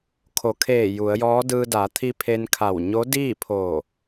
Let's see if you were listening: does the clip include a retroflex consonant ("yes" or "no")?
no